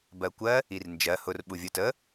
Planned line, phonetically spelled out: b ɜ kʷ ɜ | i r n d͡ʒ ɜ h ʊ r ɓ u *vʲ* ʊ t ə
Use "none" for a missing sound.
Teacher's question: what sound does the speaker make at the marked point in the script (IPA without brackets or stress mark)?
vʲ